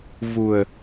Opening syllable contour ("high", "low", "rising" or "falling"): low